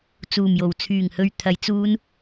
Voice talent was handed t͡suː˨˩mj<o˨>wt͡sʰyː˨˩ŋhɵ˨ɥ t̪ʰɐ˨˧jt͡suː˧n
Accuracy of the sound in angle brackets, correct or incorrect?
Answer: incorrect